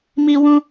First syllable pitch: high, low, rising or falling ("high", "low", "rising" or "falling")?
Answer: high